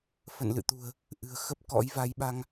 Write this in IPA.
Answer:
f ə̰˧˨ n l ɨ̰˧˨ t̪ ṳ˨˩ ə̯ | ʔ ɨ̤˨˩ ə̯ x ə˦˥ p̚ k ɔ̰˧˥ j v a˨˦ j ɓ a˧ ŋ

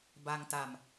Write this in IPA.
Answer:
b a˧ ŋ t a˨˩ m

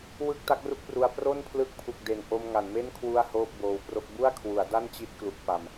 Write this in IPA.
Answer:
w ɯ˥˩ k̚ t a˦˥ k̚ r u˥˩ k̚ p r u˧ a̯ p r o˥˩ n pʰ l ɯ˦˥ k̚ pʰ u˨˩ k̚ d e˨˩ n ʔ o˧ m ŋ a˩˦ n m e˥˩ n kʰ w u˥˩ a̯ h oː˥˩ p̚ b oː˧ w p r o˥˩ k̚ b u˥˩ a̯ kʰ w u˩˦ a̯ d a˥˩ n t͡ɕ i˦˥ t̚ k l u˦˥ k̚ p a˧ m

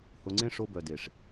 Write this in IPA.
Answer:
h ʊ˧ ŋ͡ǀ ẽ˦ ʂ o˧ b œ˨ d e˨ ʂ

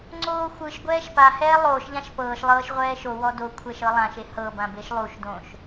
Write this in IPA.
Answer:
ŋ͡ǀ oː xʷ ɯ ʃ ɡʷ ɛː ʃ p a h ɛː lˠ oː ʃ ʎ ã ʃ p ɤː ʃ lˠ ɤː ʃ ʁʷ ɛː ʃ o w ɔ d o kʷʰ ɛ ʃ ɤ lˠ ã ʃ e h ɤ b ã b e ʃ lˠ u ʃ d õː ʃ

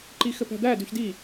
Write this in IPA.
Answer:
ǃ i x ɘ p æ̤ d̪ æ d ʉ ç d i

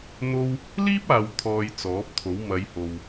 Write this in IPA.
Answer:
n̪ o˥ w | l iː˥ p̚ aː˨ w t̪ʰ ɔː˧ j t͡s ɔː˨˥ p̚ t̪ʰ o˨˥ w m ɐ˨˧ j h o˨ w

